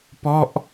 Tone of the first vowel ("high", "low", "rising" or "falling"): falling